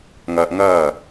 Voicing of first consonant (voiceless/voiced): voiced